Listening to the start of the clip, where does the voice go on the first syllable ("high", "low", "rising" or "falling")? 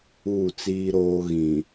falling